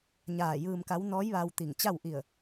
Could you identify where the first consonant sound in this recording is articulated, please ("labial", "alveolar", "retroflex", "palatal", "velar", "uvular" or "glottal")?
palatal